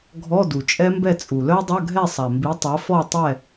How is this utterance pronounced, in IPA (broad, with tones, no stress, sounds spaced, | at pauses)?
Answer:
ɡʱ ɔ˧˥˧ d u˨ t͡ʃʼ ɛ˦˥ m b ɛ˥˨ t͡sʼ u˨ l œ˦˥ dˤ ɐ˧˥˧ ɡʱ ɛ˥˨ sˤ a˨ m b i˨˥ tˤ ɐ˨˥ f ɔ˥˨ tˤ ɛ˥˨